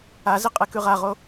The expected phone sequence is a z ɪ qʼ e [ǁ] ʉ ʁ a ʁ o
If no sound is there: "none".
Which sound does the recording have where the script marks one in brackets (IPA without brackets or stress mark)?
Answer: k